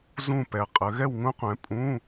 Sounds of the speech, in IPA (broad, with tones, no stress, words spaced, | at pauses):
zũ˥˨pɛ˨qʼə˨˦ ɣɛ˥˨wŋũ˦˥qʷɛ̃˨˦ pʼũ˧˥˧